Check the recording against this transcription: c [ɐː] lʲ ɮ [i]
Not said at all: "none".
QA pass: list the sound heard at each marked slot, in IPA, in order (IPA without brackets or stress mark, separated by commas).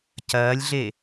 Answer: ɐː, e